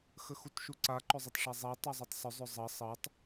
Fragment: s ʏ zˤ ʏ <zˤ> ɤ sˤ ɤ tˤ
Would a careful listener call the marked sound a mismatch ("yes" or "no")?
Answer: no